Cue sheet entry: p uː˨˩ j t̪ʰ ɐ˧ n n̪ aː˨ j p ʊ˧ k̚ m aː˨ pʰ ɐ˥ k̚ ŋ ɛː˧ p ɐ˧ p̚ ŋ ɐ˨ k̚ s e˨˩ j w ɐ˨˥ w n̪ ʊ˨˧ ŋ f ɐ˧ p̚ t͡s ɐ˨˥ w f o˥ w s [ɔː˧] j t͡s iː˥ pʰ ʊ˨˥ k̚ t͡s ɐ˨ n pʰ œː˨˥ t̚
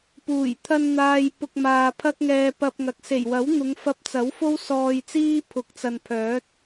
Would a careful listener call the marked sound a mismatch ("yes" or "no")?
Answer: no